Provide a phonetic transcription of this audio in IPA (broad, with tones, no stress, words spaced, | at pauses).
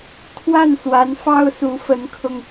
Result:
t̪ʰwa˥˩nswa˧˥n fɑ˥ʊ̯su˧˥fə˧˥nkʰʊ˧ŋ